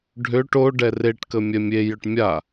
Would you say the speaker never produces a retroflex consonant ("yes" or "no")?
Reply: no